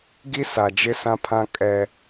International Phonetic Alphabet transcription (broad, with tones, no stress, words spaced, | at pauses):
ɡi˦sa˨d͡ʒɪ˦ sã˦pʰã˦ kʼɛ˦